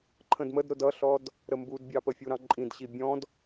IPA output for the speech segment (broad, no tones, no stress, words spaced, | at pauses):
ǃʰə̃dmədɾʊ dʌɬɔd | ɾəmbudbʲɑpə fʲuɾɑ̃ǃʼĩdɕi bʲɔ̃d